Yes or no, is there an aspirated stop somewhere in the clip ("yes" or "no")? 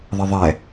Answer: no